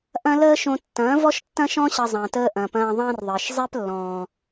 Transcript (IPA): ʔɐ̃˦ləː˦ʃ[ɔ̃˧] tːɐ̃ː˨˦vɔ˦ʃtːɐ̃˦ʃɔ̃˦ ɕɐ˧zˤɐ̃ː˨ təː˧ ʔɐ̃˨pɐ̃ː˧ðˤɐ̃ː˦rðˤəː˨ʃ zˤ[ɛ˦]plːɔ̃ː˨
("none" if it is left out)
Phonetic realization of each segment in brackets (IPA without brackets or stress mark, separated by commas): õ˧, ɛ˦